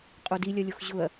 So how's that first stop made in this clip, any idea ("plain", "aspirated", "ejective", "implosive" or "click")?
ejective